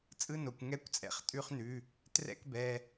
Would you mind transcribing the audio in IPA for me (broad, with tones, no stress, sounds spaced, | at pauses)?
t͡sʼ ɯ˧˥˧ n o˩ kʷ ŋ ɛ˧˥˧ kʷ t͡sʼ ɛ̰˩ χ tʼ ʉ˧˥˧ χ n ʉ˩˧˩ | t r ɛ̰˧˥˧ k b ɛ˩˧˩